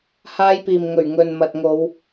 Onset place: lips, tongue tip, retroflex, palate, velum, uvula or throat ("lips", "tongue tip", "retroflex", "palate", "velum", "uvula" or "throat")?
throat